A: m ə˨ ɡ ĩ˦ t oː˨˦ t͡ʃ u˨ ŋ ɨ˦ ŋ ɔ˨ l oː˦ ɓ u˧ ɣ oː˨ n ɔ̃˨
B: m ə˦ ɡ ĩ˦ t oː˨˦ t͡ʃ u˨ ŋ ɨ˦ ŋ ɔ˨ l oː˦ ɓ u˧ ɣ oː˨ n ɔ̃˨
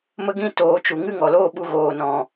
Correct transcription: B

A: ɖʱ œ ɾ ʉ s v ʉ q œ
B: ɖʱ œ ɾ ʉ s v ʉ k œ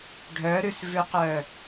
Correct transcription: A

